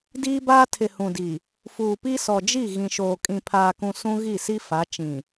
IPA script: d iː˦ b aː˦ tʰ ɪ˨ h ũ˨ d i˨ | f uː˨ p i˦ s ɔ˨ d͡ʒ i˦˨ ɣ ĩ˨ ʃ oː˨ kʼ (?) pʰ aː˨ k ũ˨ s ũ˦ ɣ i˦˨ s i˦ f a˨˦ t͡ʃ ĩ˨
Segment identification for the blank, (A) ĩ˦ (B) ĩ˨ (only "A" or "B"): B